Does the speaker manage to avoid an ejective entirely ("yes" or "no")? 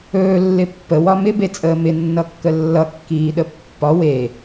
no